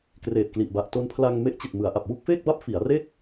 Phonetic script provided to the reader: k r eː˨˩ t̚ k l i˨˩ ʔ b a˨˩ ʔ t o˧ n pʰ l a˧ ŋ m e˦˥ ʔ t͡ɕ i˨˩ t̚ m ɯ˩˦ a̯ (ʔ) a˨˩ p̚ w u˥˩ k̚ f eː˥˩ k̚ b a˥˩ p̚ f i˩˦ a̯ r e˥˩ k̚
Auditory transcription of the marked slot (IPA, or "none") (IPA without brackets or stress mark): ʔ